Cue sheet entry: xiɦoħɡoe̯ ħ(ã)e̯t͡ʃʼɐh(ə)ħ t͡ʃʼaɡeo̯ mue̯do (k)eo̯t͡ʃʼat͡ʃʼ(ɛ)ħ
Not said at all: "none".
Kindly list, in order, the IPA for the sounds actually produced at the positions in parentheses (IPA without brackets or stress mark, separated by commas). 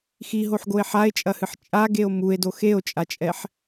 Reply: a, ɨ, x, ɛ